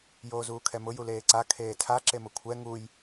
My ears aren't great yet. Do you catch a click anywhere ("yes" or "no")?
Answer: yes